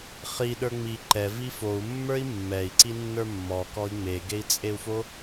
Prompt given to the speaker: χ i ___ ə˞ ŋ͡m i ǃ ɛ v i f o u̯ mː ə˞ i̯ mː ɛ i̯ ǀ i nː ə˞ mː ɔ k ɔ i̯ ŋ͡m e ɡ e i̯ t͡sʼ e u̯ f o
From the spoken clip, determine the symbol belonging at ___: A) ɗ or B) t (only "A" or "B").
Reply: A